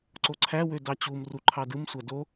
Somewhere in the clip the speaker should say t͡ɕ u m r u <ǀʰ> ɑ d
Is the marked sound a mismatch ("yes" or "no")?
yes